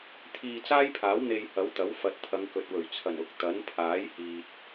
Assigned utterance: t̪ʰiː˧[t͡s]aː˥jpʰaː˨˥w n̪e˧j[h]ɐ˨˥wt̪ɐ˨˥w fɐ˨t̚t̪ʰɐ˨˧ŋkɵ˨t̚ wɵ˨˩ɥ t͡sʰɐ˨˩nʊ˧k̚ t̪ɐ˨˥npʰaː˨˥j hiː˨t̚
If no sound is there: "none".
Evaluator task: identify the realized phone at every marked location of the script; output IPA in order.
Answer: t͡s, h

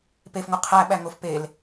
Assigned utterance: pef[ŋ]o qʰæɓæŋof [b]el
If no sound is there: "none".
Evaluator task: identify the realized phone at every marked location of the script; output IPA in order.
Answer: ŋ, p

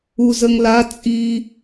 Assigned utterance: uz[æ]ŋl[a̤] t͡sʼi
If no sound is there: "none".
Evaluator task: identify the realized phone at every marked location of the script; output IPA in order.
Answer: ə, a

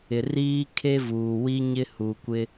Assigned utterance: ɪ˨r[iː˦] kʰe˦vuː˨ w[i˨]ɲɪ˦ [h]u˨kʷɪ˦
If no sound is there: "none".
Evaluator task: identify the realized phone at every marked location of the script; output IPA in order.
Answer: iː˦, i˦, h

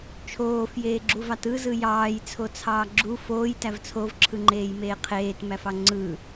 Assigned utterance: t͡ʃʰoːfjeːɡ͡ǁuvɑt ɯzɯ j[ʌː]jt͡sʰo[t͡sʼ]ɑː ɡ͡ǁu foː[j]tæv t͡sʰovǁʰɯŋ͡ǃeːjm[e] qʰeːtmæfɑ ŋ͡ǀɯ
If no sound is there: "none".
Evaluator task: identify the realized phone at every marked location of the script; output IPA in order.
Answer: ɑː, t͡sʰ, j, eː

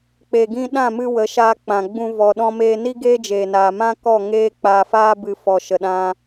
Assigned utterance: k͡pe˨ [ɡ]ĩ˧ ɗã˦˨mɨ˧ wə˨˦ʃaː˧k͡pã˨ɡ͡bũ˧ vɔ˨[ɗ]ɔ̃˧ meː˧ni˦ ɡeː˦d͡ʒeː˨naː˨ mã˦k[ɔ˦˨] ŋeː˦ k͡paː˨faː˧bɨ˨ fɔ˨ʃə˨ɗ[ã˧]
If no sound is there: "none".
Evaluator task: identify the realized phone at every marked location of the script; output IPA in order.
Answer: ɡ, ɗ, ɔ˦˨, ã˧

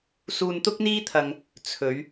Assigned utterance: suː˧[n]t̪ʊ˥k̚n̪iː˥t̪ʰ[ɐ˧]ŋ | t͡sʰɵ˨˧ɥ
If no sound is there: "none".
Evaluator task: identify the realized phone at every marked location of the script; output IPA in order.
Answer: n, ɐ˧

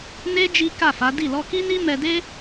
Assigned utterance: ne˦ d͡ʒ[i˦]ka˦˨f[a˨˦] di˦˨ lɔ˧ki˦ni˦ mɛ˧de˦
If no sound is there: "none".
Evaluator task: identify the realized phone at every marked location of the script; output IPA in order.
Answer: i˦, a˨˦

